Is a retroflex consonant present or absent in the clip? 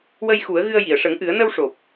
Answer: present